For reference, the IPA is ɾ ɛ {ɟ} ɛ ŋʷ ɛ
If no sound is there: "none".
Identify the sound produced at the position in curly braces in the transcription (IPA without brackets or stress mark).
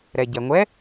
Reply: ɟ